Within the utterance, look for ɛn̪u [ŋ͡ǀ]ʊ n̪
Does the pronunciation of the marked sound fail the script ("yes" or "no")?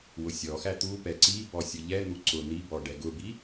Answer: yes